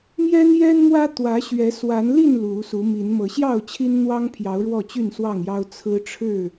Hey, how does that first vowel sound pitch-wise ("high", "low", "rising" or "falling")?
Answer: high